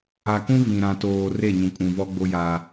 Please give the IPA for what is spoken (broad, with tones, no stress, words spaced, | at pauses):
a˨kũ˦ vĩ˨ ɾã˨toː˨ re˦˨ɲũ˨kʼũ˨ vɔ˦ɡ͡bo˦ja˦